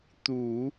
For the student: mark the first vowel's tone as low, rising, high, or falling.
low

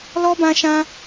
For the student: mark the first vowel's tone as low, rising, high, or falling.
high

